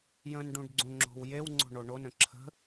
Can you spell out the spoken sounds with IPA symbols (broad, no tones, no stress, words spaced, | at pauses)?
jə̃nɖũɖ ɡ͡ǀũŋ͡ǁo̤wjewŋ͡ǀo̤ ɳoɳonə̃ ǁʰə̤